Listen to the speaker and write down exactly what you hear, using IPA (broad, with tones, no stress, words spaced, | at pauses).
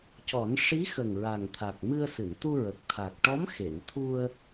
cɔ˨˩˦n ʂi˧˥xə˨˩ŋ ɹa˨˩ŋt̪ʰa˨˩k̚ mɨ˧ə̯sɨ˨˩˨nt̪u˧ɹə˨˩k̚ t̪ʰa˨˩k̚ʈɔ˧˥m xe˨˩˨nt̪ʰu˧ə̯